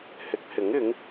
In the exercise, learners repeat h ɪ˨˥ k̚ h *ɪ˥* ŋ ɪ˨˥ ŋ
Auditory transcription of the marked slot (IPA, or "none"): ɪ˨˥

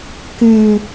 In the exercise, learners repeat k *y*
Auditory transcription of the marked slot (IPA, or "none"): y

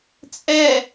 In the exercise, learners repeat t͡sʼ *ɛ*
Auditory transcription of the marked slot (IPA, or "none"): ɛ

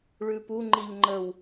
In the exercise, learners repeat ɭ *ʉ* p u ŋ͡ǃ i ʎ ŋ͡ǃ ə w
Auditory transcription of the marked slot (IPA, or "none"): ʉ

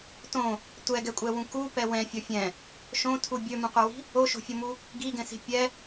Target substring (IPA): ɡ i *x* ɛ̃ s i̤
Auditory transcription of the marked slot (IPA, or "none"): ɡ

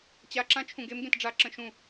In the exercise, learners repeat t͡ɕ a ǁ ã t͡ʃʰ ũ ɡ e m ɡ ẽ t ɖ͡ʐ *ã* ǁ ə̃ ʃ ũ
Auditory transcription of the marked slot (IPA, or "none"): a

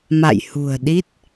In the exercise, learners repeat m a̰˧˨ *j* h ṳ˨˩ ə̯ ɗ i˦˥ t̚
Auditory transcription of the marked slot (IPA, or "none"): j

